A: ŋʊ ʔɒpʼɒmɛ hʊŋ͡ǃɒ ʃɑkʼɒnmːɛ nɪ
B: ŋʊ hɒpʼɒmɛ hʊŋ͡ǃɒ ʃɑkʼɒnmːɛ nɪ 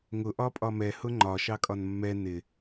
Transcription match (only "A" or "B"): A